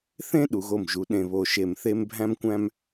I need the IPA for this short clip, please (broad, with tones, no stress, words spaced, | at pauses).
θẽ˥ ɗu˩˧ɣo˧˩mʒu˩˧ ɗẽ˧˩βo˧˩ ʃe˧˩mθe˥mbʱæ̃˥mkʷæ̃˥m